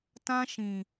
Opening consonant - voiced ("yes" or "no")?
no